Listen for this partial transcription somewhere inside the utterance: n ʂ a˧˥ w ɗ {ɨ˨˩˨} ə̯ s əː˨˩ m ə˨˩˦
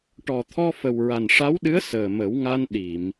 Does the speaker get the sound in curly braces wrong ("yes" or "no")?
yes